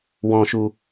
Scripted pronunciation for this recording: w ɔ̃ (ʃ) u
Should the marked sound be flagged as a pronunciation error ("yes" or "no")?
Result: no